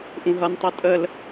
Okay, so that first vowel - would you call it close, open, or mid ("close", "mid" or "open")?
close